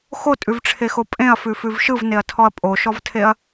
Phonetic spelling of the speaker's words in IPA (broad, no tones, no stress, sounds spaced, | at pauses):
x o tʼ ʉ v ʈ͡ʂʰ e x o pʼ ẽ ɐ̯ f ʉ f ʉ v ʃ ɯ v n e ɐ̯ tʰ ɔ ɐ̯ pʼ o ʃ ɔ v tʰ e ɐ̯